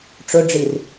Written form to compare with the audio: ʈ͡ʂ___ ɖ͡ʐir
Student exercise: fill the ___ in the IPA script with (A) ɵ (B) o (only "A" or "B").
A